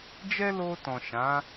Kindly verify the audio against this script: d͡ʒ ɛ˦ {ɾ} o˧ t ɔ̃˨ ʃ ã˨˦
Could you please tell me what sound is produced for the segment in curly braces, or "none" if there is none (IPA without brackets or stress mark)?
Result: l